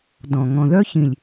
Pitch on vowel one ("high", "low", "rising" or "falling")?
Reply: low